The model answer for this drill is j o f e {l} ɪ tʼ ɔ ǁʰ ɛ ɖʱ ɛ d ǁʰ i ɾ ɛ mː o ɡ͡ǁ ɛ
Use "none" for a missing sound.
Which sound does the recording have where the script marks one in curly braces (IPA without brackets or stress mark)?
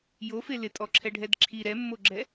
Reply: l